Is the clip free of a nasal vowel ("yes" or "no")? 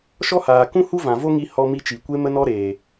no